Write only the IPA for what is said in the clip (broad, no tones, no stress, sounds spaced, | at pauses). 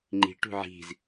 ŋ͡ǃ i̤ ʈ ṳ ʕ i̤ z